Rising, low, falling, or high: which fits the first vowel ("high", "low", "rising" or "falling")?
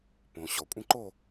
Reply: low